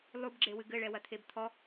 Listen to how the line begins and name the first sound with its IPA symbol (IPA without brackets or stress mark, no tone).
lˠ